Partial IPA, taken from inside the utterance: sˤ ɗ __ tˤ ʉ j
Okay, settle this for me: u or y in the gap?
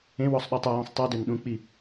y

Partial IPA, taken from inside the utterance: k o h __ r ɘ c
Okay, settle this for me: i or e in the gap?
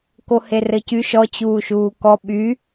e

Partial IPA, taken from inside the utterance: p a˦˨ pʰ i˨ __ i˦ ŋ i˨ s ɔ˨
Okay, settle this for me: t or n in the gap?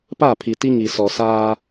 t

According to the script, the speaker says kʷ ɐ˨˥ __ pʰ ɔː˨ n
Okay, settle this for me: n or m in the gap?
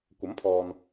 m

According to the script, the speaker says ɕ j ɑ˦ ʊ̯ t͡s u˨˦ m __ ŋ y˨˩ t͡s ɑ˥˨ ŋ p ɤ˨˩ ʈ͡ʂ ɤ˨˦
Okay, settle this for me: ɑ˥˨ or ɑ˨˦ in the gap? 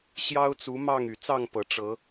ɑ˥˨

